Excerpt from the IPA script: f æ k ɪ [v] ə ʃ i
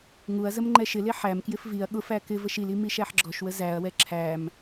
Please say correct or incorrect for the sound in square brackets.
correct